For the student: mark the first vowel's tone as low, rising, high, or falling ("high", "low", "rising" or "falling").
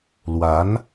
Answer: rising